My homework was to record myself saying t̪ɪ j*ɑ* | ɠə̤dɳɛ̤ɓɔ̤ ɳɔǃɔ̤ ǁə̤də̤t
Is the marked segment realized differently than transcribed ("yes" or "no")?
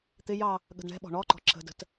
no